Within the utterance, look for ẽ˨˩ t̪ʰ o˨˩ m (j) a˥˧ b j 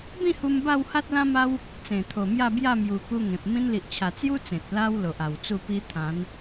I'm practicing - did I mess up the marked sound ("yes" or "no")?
no